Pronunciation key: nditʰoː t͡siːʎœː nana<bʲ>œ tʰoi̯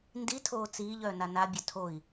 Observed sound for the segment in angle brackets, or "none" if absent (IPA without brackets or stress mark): bʲ